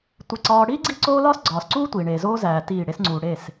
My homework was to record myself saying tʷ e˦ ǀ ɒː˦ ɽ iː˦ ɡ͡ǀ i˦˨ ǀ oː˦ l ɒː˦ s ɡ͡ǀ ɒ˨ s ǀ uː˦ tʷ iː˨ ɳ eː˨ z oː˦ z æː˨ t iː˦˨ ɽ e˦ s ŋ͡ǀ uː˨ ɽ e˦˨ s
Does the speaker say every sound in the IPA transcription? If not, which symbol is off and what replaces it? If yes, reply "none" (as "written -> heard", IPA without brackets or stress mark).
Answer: ɒ˨ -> ɒː˨